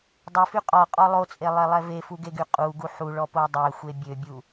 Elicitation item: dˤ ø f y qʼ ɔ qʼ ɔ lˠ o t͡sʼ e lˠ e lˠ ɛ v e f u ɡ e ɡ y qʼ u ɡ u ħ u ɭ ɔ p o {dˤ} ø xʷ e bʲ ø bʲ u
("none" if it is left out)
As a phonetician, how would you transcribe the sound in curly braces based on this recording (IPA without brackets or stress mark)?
dˤ